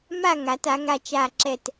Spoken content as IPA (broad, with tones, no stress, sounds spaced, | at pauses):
m a˥˧ ŋ a˩˧ t a˩˧ ŋ a˧ t͡ʃ a˧˩ ǁ ɛ˧˩ t